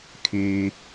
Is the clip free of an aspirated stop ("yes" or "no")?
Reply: no